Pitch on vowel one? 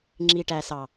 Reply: low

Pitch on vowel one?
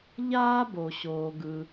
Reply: high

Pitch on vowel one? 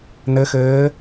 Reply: rising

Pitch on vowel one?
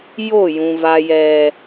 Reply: falling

